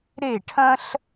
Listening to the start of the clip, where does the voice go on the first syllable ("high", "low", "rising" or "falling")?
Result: falling